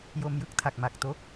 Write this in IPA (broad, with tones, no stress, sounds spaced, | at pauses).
j o˧ m j ɯ˦˥ k̚ tʰ a˨˩ k̚ m a˨˩ k̚ t o˦˥ k̚